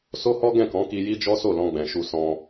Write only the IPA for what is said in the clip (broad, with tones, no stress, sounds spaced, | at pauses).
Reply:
s o˦ h ɔ˦ ɡ ɛ̃˦˨ k ɔ̃˨˦ k i˧ j i˦ d͡ʒ ɔ˦ s o˦˨ l ɔ̃˧ ɡ͡b ɛ̃˨ ʃ u˧ s ɔ̃˧